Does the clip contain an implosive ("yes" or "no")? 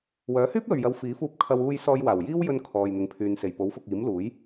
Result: no